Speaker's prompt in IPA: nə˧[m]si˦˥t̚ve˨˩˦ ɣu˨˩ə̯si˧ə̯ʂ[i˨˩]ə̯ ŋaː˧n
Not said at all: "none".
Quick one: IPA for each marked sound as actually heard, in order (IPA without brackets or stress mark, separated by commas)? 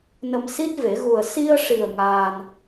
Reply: m, i˨˩